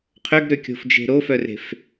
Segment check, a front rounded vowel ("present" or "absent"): present